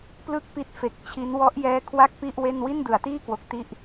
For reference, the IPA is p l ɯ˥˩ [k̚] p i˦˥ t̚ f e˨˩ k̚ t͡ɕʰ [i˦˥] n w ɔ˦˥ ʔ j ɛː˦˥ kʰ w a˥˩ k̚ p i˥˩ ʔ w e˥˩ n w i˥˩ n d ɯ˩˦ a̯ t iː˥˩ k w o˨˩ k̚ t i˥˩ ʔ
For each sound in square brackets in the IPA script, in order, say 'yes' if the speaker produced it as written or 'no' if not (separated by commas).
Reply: yes, yes